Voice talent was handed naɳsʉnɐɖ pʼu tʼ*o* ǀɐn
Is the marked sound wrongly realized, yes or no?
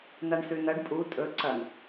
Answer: yes